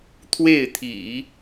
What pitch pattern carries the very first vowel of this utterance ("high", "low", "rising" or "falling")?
falling